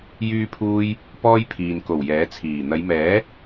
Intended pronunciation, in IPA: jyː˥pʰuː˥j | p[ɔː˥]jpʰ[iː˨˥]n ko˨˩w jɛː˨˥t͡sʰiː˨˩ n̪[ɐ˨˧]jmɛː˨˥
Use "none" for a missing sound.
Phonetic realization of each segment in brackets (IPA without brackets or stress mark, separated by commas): ɔː˥, iː˨, ɐ˨˧